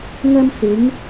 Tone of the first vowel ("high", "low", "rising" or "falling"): high